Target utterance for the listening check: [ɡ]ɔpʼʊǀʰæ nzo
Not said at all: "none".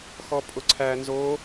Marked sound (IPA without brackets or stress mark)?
x